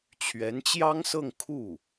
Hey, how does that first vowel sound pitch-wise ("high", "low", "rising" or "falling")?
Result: rising